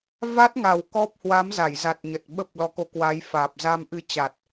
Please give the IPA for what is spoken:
v a˦˥ t̚ ŋ a˨˩ w k ɔ˦˥ p̚ h w a˨˦ m z a˧˩ j z a˨˩ t̚ ɲ ə˨˩ t̚ ɓ ə˦˥ p̚ l ɔ˨˦ k o˨˦ k w a˨˦ j f aː˨˩ p̚ z a˧ m ʔ ɨ˧ t͡ɕ a˨˩ t̚

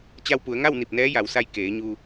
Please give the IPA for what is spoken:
t͡ɕ a˧ w p u˩˧ ə̯ ŋ a˥˨ w n i˧˩ p̚ n ɛː˧˥ j a˩˧ w s a˧ j k eː˩˧ ɲ u˧

